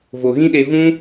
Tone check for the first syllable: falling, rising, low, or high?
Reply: low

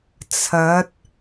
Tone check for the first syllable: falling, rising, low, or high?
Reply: rising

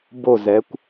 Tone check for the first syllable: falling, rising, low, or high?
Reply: falling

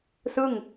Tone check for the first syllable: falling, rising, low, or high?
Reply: falling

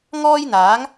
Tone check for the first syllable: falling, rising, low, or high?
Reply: high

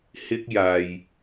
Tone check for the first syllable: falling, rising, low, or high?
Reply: high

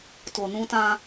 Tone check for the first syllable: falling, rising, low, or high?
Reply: low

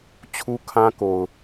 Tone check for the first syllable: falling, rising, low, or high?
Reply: high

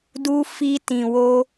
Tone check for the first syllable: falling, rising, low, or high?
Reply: high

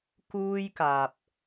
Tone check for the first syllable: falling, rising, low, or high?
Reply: high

